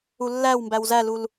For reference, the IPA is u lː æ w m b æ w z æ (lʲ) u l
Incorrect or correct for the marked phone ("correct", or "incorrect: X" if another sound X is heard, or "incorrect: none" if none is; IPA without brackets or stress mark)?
incorrect: l